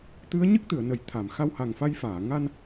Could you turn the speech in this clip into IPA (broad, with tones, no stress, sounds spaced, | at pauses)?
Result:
t̪ ɨ˧˥ ə̯ ɲ ɨ˦˥ k̚ t̪ ɨ˨˩˨ ə̯ n ə˨˩˨ j t̪ʰ a˨˩˨ m x a˧ w h a˨˩ ŋ f a˧ j f aː˨˩˨ ŋ a˧ n